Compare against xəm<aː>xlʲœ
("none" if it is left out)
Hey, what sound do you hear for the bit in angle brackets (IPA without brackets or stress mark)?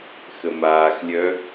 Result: aː